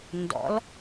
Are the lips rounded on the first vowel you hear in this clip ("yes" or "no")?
yes